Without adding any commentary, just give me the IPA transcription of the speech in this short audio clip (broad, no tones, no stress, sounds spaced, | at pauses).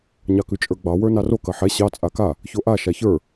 ɲ ɑ k ʉ t͡ʃʼ ə˞ ɡ͡b ɑ w ə˞ n ɑ r o k ɐ ħ ɛ ɕ ɑ t͡sʼ a k a | ç o ʔ a ʃ a ç ə˞